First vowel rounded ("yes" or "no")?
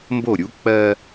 yes